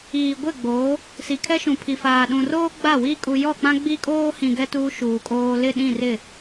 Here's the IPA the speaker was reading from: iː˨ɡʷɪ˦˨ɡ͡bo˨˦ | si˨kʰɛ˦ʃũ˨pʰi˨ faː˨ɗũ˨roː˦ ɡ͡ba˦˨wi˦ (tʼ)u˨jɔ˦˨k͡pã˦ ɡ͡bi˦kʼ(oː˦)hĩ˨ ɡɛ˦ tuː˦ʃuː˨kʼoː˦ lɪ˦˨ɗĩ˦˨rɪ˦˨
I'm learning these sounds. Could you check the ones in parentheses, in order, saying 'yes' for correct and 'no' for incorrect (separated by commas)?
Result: no, yes